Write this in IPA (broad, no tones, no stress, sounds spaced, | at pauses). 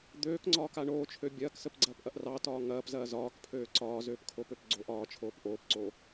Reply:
d̪ øː k ŋ͡ǀ ɒː k a ɳ oː t͡ʃʰ ø bʲ ɐː k s ə p ɡ͡ǀ ɐː p ʔ ɐ ʔ r ɑ t ɒː ŋ ɐː p z ɐː z ɒː k pʰ øː ǀ ɒː z øː p kʰ o p ø p ɡ͡ǀ o ʔ ɒː t͡ʃʰ oː p ʔ oː p ǀ oː